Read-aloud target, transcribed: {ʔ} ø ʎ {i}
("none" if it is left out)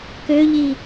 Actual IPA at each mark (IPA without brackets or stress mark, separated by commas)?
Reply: k, i